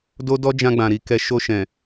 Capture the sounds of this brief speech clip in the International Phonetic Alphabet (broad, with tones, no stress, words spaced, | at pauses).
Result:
do˦dɔ˦ d͡ʒã˧ɡ͡bã˨ɾi˨kɛ˨ ʃo˧ʃɛ̃˨